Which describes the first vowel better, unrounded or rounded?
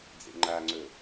unrounded